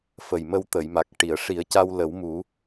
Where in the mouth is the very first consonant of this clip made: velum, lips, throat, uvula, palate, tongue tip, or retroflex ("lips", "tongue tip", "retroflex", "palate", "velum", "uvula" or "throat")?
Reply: lips